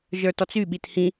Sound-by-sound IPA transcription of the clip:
ʒ ə˞ t ɔ t͡s y ɓ i t h ĩ

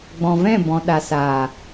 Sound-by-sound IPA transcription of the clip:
ɡ͡b ɔ̃˨ v ɛ̃˦˨ b ɔ̃˨ ɗ a˨ s aː˨

